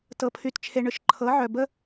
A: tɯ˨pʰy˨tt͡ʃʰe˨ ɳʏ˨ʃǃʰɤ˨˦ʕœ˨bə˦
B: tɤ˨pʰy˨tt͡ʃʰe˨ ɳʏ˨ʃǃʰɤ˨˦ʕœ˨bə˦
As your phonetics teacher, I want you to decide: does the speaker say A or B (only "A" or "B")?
B